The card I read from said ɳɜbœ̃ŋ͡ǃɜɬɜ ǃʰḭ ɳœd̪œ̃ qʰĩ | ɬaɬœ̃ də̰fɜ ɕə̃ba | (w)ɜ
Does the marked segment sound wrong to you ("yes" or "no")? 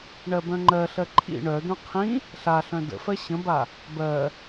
yes